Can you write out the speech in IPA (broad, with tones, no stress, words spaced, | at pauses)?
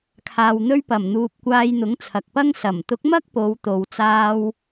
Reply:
kʰaː˨wn̪ɵ˧ɥpɐ˨˩mn̪uː˨p̚ kʷaː˧jn̪ʊ˨˥ŋt͡sʰɐ˨k̚pɐ˥ŋ sɐ˨˩mt̪ʊ˨˥k̚ mɐ˥k̚po˨˧wt̪o˨w t͡saː˧w